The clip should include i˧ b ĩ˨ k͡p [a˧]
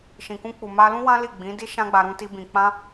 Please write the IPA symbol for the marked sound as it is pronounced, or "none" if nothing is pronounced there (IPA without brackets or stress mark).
ã˧